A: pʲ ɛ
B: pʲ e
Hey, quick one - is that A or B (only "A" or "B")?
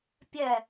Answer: A